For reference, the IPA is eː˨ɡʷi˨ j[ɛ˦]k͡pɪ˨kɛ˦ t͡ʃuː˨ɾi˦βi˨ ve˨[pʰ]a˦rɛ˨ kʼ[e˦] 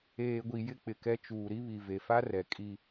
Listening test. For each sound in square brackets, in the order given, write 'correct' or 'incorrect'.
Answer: incorrect: ɪ˦, incorrect: f, incorrect: i˦

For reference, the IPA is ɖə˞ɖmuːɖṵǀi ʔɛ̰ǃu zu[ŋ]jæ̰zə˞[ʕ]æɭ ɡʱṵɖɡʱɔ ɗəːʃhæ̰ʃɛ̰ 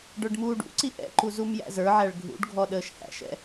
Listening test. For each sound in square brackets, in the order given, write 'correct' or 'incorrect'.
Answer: incorrect: m, correct

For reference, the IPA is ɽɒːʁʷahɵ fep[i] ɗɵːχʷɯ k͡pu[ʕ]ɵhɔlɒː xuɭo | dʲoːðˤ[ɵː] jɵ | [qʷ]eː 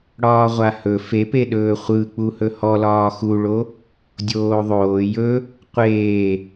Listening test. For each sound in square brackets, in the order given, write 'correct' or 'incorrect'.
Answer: incorrect: e, incorrect: h, incorrect: oː, correct

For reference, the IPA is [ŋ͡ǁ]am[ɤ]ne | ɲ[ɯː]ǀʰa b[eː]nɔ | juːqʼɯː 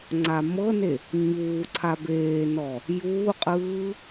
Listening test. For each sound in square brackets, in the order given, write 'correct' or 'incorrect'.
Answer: incorrect: ŋ͡ǀ, correct, incorrect: uː, correct

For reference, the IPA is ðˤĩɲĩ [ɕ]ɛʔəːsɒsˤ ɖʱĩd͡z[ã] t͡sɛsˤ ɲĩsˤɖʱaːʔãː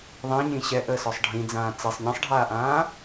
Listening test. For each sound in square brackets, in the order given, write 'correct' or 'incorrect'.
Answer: correct, incorrect: ãː

